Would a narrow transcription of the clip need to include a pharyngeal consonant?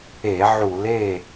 yes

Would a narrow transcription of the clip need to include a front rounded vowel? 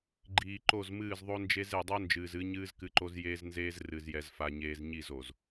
no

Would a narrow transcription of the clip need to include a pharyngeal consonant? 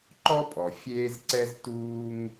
no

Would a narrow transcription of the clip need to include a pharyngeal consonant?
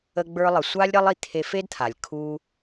no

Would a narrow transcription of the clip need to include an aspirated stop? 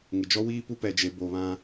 no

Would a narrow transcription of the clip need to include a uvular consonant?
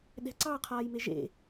yes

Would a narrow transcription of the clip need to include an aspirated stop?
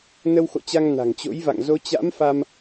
no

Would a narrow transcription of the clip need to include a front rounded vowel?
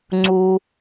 no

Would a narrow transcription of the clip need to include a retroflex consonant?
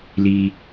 no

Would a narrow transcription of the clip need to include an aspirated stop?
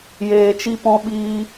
no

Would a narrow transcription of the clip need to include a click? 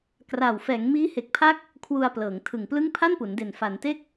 no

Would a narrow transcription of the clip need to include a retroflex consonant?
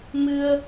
no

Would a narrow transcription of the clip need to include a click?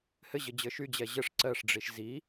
yes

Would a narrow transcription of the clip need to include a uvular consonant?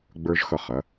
yes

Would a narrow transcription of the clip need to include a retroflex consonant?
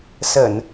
no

